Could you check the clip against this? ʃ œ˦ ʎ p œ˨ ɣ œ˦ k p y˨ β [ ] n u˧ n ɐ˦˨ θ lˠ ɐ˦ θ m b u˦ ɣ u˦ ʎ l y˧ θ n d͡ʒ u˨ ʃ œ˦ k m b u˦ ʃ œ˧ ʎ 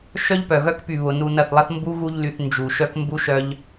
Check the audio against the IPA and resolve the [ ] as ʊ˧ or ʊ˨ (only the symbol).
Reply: ʊ˨